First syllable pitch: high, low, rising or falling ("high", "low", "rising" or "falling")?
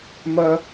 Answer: low